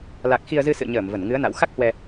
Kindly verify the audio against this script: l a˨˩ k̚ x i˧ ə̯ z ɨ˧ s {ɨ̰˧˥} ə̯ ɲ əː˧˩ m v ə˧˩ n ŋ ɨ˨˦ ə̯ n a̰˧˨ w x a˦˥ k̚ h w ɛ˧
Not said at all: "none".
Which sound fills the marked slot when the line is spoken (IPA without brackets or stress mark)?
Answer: ɨ̰˧˨